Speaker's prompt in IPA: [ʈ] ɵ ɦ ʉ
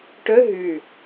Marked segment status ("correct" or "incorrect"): correct